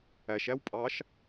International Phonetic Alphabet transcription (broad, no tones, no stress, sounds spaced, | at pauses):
æ ʃ æ w pʼ ɑ ʃ